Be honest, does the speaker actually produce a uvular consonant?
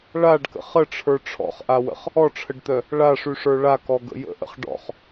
yes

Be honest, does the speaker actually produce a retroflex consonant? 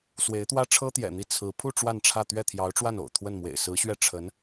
yes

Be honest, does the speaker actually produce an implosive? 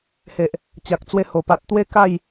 no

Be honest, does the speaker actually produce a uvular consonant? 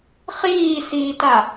yes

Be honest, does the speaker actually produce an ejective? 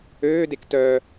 no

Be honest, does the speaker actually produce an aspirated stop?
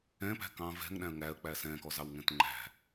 no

